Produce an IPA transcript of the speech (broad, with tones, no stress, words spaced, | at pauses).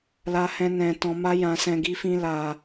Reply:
la˦hɛ̃˦ nɛ̃˧tɔ̃˧ ma˦jã˧sɛ̃˧ ɡi˦fĩ˦la˧